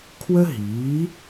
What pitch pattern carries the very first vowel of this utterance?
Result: high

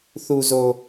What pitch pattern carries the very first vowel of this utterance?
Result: low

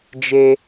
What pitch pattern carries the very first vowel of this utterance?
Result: high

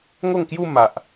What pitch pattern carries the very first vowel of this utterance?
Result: falling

